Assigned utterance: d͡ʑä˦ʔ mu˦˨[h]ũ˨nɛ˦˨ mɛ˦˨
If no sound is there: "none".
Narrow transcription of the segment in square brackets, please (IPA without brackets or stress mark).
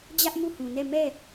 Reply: h